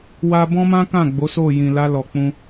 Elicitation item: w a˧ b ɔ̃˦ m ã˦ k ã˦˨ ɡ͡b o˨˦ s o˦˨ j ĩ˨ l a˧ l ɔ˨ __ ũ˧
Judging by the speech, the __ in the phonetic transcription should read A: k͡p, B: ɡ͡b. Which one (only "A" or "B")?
A